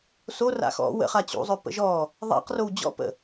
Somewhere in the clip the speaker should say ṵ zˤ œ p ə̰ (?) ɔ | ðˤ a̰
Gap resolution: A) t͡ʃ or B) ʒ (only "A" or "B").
B